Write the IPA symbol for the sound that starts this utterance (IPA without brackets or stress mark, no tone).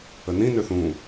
ə